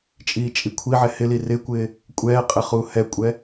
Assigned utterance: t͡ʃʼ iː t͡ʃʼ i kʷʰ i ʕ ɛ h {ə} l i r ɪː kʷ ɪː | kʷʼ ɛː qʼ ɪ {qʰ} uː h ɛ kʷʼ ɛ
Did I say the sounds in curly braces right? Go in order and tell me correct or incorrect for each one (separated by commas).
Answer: incorrect, incorrect